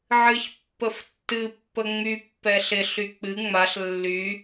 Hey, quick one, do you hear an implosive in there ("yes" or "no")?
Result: no